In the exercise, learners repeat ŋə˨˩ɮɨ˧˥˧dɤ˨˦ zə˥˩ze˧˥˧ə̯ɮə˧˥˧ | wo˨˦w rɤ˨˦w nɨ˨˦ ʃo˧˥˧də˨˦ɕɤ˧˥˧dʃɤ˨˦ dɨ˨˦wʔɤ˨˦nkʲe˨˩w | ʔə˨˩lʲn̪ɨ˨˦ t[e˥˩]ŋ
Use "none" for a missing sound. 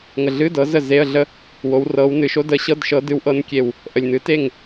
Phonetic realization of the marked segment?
e˥˩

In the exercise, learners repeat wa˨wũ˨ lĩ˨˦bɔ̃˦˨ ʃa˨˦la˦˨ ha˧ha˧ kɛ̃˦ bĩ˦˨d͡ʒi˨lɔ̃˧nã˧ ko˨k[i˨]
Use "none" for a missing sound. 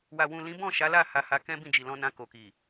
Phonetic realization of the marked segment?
i˨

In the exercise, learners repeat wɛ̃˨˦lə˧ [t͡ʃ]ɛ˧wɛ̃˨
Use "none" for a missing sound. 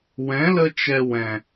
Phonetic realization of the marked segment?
t͡ʃ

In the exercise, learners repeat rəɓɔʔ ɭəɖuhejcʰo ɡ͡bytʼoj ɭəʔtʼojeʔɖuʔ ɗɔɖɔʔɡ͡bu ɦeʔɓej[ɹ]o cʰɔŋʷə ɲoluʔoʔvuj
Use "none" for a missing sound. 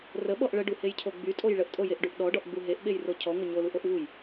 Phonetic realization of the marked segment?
r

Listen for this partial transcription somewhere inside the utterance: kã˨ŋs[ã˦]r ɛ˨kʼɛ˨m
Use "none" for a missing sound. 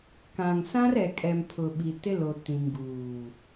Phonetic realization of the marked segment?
ã˦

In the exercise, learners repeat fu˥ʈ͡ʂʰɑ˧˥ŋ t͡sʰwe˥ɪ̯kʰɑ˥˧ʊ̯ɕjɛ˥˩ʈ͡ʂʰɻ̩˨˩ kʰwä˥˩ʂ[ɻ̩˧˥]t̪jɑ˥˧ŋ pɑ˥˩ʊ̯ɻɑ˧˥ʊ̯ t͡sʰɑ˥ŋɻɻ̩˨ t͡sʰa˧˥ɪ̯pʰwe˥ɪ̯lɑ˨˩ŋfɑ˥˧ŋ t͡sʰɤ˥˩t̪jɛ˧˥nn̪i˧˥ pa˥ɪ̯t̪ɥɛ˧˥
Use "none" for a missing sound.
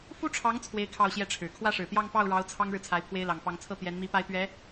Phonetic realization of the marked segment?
ɻ̩˨˩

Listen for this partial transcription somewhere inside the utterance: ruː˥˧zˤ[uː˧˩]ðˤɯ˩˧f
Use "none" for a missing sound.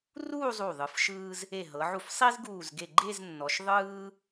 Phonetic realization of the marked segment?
u˧˩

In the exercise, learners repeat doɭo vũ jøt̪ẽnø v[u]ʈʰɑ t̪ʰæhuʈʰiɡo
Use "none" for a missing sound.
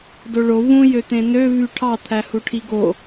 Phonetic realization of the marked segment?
y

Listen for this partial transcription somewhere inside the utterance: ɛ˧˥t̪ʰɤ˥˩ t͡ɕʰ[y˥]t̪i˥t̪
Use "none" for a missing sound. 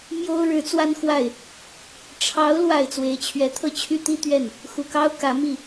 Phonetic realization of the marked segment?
y˥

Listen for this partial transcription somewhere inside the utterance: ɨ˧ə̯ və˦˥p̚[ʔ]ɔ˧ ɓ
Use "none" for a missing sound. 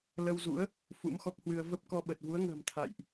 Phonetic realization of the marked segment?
k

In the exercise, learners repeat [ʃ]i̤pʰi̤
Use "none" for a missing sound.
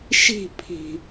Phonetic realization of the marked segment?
ʃ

